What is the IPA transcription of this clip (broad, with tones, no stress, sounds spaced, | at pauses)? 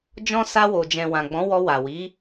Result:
d͡ʒ ɔ̃˧ s a˧ w o˨ d͡ʒ ɛ̃˨ w ã˨ ɡ͡b ɔ̃˨˦ w ɔ˧ w a˨ w i˨˦